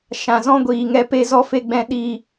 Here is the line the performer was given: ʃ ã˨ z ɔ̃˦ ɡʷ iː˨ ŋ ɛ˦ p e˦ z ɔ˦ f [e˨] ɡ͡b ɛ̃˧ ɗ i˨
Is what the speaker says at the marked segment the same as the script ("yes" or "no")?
no